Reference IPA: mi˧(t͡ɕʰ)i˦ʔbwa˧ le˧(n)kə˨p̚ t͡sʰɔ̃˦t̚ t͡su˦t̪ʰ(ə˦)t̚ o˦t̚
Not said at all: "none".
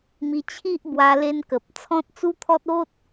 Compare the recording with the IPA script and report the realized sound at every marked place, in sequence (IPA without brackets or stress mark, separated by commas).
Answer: t͡ɕʰ, n, ɔ˦